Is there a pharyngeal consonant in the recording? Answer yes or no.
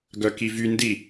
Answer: no